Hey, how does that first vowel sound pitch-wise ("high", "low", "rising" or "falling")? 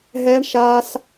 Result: high